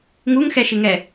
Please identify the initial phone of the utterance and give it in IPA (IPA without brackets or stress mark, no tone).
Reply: ŋ